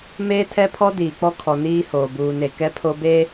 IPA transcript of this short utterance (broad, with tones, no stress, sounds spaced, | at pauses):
m eː˦ tʰ ɛ˦ pʰ ɔ˦ d iː˨ k͡p ɔ˦ kʰ ɔ˨ n iː˦ h oː˨ b uː˨ n e˨ k ɛ˦ pʰ o˦ b e˦